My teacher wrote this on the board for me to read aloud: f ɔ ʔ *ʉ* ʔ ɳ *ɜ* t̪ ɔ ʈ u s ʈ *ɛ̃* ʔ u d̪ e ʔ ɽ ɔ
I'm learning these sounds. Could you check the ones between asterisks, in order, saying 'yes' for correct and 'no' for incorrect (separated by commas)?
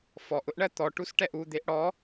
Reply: no, yes, no